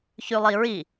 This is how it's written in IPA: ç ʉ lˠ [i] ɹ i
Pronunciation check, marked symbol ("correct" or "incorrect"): correct